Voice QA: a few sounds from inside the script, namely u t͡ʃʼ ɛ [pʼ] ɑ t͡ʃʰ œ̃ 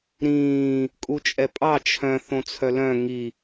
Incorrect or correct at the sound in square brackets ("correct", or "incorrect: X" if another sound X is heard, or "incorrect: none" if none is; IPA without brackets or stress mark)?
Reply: correct